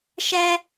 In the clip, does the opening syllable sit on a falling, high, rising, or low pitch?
high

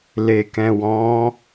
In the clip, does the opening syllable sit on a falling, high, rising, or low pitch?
low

